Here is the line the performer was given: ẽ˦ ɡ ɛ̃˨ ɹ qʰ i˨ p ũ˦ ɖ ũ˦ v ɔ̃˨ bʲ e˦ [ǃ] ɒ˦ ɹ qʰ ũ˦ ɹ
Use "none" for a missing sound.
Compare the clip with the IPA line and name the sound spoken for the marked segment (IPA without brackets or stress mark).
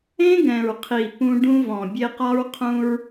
q